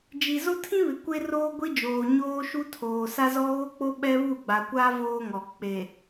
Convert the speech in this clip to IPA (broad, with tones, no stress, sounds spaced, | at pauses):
d͡ʒ i˨ z o˦ tʰ ĩ˦ β ɪ˨ kʷ e˦ r oː˦ ɡʷ i˦ d͡ʒ oː˨ ɲ oː˦ ʃ u˦ tʰ oː˨ s a˦ z ɔ˦ ɣ o˦ k͡p o˦ ɓ ɛ˦ β u˦˨ ɡ͡b a˨ kʷ a˦ v oː˦ ŋ ɔ˨ k͡p e˨